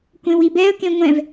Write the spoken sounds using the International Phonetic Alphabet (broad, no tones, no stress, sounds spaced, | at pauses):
kʷ ẽ w i b ɛ ə̯ k ẽ ŋʷ ɛ̃ v